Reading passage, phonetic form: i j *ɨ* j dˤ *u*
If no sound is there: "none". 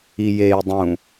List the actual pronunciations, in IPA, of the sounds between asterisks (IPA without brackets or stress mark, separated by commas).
e, ũ